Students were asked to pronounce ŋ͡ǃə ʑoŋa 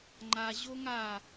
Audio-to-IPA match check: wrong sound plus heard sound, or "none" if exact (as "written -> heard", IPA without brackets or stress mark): ə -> a